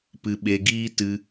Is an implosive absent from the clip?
no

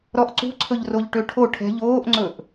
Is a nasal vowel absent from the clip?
yes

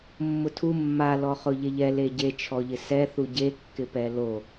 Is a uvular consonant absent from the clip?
no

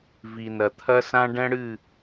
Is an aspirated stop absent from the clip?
no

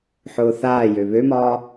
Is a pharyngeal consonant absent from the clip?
no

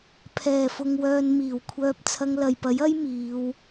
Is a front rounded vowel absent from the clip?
no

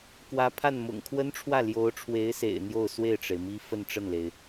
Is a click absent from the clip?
yes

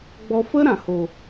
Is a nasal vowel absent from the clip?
no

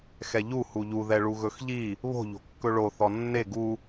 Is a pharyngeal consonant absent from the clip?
yes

